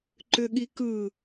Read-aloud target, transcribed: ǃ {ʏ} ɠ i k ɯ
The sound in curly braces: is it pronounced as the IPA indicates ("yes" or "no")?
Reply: yes